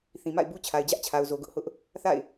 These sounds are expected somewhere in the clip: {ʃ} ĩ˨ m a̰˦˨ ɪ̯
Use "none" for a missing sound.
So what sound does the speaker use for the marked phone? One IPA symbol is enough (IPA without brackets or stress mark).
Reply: θ